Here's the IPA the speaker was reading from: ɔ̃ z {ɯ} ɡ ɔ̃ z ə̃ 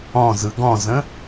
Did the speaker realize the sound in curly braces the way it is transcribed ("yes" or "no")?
yes